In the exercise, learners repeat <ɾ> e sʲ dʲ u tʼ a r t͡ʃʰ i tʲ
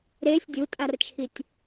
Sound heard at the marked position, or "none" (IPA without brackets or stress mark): ɾ